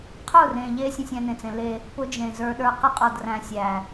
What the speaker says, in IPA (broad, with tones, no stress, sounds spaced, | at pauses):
qʰ ʊ˦˨ r ẽ˨ ʎ e˦ sʲ ə̃˦ sʲ æ̃˦ n ẽ˨ t͡s ẽ˦ l e˦ | p ʊ˦ d͡ʒ ẽ˨ z ə˞˦ ɗ ə˞˦ q ɪ˦ qʼ ɔ˨ d r æ̃˨ sʲ æ˨